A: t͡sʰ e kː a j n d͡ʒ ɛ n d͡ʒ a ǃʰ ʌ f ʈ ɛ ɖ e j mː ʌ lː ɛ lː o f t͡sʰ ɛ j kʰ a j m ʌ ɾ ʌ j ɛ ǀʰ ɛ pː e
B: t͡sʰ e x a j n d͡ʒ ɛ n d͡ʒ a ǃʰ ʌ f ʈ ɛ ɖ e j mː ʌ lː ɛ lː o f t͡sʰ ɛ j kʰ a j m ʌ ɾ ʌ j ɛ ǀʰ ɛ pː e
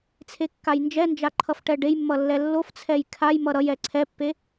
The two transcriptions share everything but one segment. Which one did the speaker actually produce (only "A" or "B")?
A